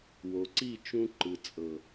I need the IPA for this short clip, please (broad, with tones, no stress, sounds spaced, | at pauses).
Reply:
w o˨ ǀ i˦˨ t͡ʃ ũ˧ ǃ ɯ˨ t͡sʼ ɤ˨